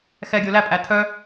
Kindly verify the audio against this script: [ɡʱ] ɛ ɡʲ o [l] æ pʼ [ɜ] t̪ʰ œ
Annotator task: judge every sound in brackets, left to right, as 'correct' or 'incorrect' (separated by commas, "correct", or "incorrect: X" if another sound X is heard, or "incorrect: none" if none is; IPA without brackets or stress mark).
incorrect: x, correct, incorrect: æ